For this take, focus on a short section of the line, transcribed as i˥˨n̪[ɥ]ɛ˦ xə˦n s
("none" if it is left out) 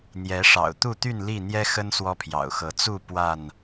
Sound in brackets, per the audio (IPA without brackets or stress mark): j